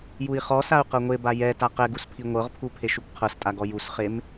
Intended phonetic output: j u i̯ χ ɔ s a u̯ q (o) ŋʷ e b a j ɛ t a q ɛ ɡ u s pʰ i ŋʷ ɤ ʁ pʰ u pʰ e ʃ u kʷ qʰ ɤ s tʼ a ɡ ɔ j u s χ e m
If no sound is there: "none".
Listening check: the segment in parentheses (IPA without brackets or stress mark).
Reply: ɤ